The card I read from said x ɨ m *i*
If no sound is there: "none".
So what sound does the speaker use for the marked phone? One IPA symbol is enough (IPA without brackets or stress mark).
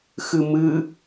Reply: ɨ